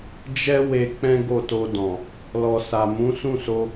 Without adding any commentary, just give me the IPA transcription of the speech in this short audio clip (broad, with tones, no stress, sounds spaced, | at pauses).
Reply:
d͡ʒ ɛ˦ w e˧ k͡p ɛ̃˦ ɡ o˦˨ t o˧ d ɔ̃˨ | l ɔ˨ s a˨ m ũ˨˦ s ũ˦˨ s o˧